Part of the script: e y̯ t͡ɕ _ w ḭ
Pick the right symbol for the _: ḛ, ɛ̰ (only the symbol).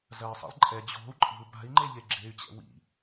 ɛ̰